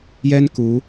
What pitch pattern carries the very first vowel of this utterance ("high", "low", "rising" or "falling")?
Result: high